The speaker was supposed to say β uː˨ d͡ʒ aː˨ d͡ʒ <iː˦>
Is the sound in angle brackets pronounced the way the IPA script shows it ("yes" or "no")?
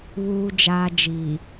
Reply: no